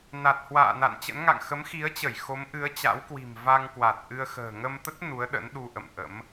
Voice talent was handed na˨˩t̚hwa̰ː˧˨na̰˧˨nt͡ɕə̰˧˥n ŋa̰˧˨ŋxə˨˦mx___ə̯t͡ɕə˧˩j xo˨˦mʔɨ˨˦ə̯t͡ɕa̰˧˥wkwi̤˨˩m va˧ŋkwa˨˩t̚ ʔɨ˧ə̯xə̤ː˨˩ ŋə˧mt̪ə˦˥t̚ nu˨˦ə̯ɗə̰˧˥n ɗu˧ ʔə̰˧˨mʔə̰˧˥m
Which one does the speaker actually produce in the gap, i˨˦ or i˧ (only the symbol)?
i˨˦